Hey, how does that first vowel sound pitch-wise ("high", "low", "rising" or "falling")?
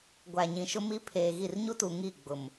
low